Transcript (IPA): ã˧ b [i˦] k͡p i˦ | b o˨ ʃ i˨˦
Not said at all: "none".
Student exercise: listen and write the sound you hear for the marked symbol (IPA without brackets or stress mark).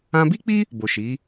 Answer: i˦